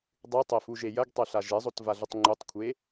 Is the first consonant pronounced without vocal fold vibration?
no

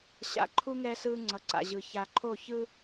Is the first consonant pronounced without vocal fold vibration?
yes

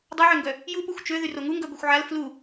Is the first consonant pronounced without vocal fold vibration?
no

